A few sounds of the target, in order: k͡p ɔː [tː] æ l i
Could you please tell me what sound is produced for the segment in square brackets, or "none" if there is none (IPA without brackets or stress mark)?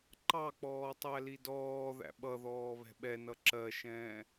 tˤ